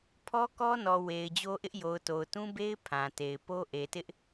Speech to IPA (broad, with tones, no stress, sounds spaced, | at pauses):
pʰ ɔ˦ k ɔ˦ n ɔ˨ w e˨ ɪ̯ d͡ʑ o˦ ʔ ɪ˦ ʔ j o˨ ʊ̯ t o˨ ʊ̯ t ũ˦ b e˦ ɪ̯ pʰ ã˨ t e˨ ɪ̯ p o˦ ʔ e˨ t ɪ˦ ʔ